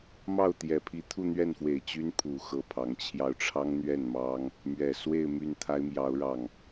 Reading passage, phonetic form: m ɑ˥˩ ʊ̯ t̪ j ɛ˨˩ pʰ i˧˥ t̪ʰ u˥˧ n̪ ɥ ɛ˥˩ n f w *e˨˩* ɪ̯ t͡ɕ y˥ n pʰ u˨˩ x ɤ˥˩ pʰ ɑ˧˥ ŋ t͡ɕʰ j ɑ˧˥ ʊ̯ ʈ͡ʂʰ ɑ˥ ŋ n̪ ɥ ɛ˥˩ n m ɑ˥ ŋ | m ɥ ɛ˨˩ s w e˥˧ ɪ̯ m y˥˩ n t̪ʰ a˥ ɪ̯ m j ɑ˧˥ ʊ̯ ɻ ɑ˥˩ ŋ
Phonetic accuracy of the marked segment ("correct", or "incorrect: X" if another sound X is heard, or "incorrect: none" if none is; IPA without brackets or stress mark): correct